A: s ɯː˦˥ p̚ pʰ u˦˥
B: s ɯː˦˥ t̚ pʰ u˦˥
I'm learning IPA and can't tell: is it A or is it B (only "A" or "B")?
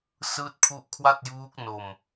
B